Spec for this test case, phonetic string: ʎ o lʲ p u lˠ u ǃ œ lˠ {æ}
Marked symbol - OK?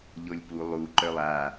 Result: no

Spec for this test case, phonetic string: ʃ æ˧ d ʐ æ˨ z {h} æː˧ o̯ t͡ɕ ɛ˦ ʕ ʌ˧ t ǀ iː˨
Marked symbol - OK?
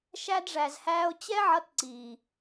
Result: yes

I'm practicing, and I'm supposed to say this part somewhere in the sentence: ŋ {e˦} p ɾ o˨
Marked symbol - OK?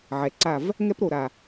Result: no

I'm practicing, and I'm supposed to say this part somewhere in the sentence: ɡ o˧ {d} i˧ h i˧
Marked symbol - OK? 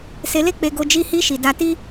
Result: no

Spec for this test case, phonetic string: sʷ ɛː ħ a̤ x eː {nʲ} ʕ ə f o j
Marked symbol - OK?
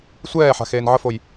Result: no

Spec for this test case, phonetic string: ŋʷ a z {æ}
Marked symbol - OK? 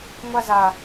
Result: no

